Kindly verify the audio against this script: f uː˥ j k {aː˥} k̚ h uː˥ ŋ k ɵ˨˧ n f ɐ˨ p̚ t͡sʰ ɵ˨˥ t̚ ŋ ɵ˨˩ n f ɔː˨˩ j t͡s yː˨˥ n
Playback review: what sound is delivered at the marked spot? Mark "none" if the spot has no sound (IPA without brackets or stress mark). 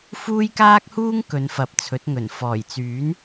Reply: aː˥